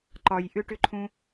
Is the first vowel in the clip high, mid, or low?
low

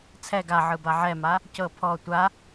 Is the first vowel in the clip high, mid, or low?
mid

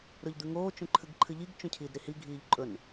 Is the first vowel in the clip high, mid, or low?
mid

